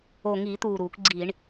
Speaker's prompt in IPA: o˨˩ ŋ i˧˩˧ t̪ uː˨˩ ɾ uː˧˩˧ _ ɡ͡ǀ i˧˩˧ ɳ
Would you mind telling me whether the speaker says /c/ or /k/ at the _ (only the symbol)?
k